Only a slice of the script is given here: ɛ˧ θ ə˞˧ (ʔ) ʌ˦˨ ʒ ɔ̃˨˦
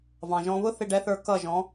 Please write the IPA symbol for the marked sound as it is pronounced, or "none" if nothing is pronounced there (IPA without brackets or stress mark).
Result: k